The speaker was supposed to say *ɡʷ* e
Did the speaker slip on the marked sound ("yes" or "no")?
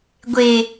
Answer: no